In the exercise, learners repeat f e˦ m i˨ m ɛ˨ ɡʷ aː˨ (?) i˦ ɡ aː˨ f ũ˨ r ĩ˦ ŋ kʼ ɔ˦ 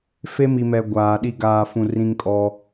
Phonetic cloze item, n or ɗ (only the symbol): ɗ